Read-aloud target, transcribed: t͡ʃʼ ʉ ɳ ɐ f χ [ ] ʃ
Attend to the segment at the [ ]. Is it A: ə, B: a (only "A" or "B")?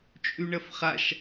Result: B